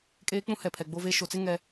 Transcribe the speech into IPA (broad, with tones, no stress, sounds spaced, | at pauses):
kʼ eː˦ k͡p ũ˦ h ɛ˨ pʰ ɛ˨ ɡ͡b o˦ v e˦ ʃ o˨ t͡s ɪ˦ ŋ ɛ˦